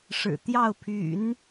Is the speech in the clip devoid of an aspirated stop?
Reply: no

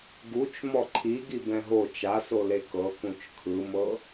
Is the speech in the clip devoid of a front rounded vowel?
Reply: yes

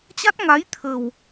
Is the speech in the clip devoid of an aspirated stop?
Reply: no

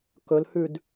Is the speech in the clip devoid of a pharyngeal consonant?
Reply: yes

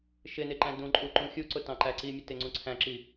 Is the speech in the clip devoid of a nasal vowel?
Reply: no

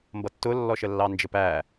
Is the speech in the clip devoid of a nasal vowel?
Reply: yes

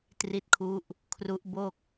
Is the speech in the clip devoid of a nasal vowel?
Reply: yes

